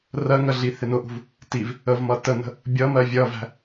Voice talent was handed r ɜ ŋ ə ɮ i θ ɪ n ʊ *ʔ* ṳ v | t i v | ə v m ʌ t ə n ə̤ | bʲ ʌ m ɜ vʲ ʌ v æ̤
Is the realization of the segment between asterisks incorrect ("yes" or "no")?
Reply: no